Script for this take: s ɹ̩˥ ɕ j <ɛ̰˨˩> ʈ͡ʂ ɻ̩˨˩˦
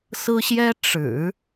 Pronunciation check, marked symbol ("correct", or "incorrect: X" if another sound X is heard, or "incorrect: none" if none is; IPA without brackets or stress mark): incorrect: ɛ˥